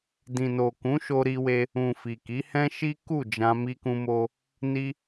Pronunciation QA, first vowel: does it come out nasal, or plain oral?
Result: nasal